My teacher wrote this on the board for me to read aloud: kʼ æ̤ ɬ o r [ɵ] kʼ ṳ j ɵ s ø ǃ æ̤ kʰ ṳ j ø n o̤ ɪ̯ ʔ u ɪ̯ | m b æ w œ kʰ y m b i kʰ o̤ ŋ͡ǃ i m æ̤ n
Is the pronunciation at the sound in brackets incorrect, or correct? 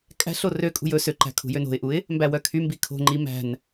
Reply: incorrect